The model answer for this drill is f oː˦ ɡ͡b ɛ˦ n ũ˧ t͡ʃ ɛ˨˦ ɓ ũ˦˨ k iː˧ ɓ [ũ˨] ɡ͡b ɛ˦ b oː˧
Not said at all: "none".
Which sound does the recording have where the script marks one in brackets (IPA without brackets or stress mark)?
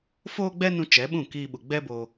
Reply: u˨